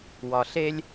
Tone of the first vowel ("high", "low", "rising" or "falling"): low